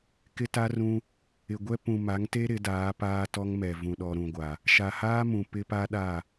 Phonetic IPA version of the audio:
kɪ˦ta˦rũ˦ | ɪ˨ɡʷɛ˦ pũ˨ma˨˦ŋte˦ ɾɪ˨˦daː˨˦ paː˦tɔ˦ŋmɛ˨ vũ˨ɗɔ˨ɾũ˨ɡʷa˨ | ʃa˨haː˦mũ˨ pɪ˦pa˦ɗa˦˨

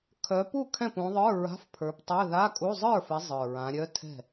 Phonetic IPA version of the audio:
kʰœ˨˦pu˥˩ kʰɛ̃˥˩pũ˨˦ðˤə˞˧˥˧ ɹa̤˧˥˧fpʰə˞˨˦ptˤœ˧˥˧ ða˧˥˧kʼu˧˥˧ zˤə˞˥˩fɪ˨˦ zˤə˞˨˩ɹã˨˦ɾʲœ˧˥˧ tʰɛ̤˥˩

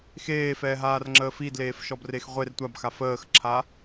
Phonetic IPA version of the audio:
xeːfɛːɦaːrŋ͡ǁəː fidleːfʃɔbrex ʁʷer tʷabxa fəːxǁʰa

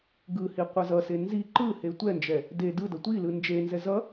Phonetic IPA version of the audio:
ɡɯhi qʷʌzʌse nzi ǃɯhe tʷɛnd͡ʒɛ | de dɯdʌ tʷi lɯnd͡ʒenzɛ zʌ

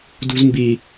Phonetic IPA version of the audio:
dṳzmbi

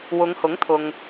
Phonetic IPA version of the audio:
wʊ˨˧ŋhʊ˨˥ŋt̪ʰʊ˨ŋ

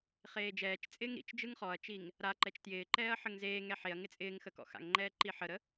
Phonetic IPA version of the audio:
χeːd͡ʒɛːt͡ʃt͡sʼɪːŋ ɾḭt͡ʃ d͡ʒɯŋχɔɐ̯t͡ʃiŋ | ɾa ǃɛt͡ʃtjɪːǃɛːɐ̯ ħəŋzeːŋɛ ħeɐ̯ŋɪ t͡sʼɪːŋxə kɔ̰xa̰ŋŋ͡ǃɛː ǃiħəɾə

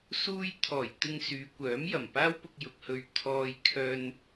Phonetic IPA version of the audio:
suː˧jt̪ʰɔː˨˩j t̪ɪ˧ŋ syː˨˧kʷœː˨˥mjɐ˨˩m paː˥wpʊ˧k̚jʊ˨k̚hɵ˧ɥ t̪ʰɔː˧j kʰœː˧n

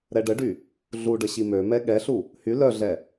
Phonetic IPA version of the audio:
ɾɛɖəɖy | ɮuɖə ɕimømɛ ɠɛɬu | hy lœɮɛ

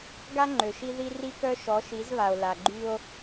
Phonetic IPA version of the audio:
ɡa˦ŋ͡ǃø˨ʃi˦ ði˦ ri˦kœ˦ ʃɔ˨˦ʃi˨˦zβa˨o̯ la˨ɡ͡ǃy˦o̯

